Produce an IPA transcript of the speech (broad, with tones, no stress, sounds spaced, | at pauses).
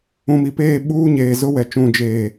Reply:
ũ˨ m i˨ p eː˦˨ ɓ uː˦ ɲ eː˨ z ʊ˦ w ɛ˨ t͡ʃ ũ˨ d͡ʒ eː˨